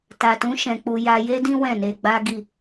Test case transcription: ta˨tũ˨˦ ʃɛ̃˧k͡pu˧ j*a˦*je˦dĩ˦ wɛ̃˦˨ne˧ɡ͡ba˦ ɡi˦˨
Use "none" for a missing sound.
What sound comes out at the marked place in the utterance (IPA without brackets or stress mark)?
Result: a˧